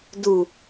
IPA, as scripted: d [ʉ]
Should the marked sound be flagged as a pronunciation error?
yes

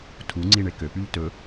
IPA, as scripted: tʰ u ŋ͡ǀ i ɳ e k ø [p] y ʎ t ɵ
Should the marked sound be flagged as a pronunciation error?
no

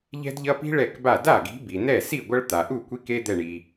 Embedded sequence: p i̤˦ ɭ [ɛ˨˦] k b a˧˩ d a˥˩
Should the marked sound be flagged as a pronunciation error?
yes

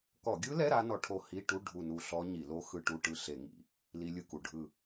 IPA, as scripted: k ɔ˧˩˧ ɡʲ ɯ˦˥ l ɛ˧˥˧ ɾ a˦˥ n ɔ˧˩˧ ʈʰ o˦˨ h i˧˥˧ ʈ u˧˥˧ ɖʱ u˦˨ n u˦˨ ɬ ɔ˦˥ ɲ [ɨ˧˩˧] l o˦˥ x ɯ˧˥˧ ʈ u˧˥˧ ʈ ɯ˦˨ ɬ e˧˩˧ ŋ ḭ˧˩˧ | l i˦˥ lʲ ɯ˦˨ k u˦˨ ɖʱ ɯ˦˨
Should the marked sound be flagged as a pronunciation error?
yes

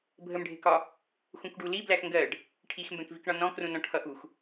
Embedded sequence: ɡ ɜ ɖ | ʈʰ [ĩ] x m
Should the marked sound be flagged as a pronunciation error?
yes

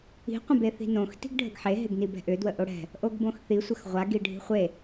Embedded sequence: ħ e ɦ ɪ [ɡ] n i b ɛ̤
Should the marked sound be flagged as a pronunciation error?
no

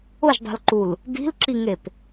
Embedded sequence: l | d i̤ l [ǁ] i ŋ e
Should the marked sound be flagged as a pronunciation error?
no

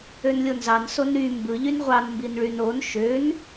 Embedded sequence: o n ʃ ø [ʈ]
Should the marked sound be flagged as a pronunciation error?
yes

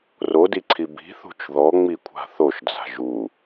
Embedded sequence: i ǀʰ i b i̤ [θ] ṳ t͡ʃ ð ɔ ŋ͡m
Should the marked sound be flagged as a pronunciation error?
no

